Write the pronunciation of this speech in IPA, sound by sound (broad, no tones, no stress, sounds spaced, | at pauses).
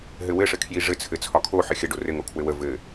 ɦ ɘ w ɘ ʂ ɘ kʰ j i ʐ ɘ t͡sʰ ɘ t͡sʰ ɒ kʰ o ħ ɘ xʲ ə ɖ o r ɘ ŋ o kʰ w ɘ w ə v ɘ